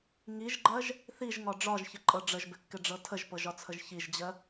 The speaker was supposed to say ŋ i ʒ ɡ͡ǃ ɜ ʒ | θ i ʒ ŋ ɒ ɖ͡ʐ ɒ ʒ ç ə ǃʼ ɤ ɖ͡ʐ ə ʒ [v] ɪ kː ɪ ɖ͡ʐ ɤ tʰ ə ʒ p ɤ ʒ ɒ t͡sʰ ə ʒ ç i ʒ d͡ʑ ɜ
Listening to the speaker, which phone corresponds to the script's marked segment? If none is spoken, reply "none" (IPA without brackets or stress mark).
b